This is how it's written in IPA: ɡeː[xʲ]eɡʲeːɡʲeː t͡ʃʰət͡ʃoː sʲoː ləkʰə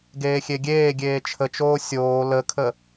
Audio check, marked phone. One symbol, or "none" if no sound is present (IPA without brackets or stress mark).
xʲ